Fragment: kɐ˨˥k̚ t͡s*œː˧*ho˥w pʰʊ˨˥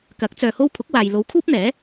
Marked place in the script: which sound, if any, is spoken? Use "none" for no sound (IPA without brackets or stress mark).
œː˧